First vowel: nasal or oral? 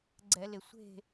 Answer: oral